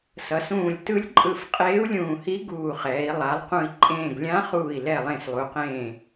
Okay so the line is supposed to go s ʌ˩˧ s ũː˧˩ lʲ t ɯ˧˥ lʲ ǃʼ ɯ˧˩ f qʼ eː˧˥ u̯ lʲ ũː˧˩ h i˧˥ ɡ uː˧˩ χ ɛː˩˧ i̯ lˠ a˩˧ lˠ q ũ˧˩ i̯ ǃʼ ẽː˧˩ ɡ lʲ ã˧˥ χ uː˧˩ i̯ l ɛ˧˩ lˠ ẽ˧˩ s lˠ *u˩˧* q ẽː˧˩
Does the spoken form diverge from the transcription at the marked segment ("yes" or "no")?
no